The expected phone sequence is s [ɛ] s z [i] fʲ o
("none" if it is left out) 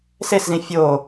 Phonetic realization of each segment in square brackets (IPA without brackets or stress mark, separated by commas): e, ĩ